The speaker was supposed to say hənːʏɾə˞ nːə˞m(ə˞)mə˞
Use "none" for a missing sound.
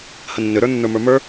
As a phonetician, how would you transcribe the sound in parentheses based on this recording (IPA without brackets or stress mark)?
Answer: ə˞